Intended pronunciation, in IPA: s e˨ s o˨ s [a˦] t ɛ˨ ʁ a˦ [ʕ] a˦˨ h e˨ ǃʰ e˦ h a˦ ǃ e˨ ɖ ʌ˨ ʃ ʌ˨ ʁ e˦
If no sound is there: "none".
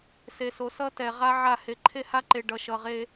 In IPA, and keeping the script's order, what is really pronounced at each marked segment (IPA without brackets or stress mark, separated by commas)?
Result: ʌ˦, ʕ